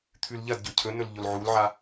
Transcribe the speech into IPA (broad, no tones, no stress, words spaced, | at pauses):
t̪ʰʉlʎɐdɟɵ cʰɵnɵl ʎolʕulʕa